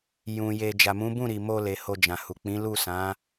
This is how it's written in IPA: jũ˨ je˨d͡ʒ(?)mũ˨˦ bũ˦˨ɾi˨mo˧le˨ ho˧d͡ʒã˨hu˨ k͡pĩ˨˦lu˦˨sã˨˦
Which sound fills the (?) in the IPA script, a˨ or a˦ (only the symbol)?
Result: a˨